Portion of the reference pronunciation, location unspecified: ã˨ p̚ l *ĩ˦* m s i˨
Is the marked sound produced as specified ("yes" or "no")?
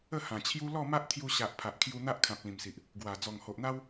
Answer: no